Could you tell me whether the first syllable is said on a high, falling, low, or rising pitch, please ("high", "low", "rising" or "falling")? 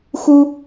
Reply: high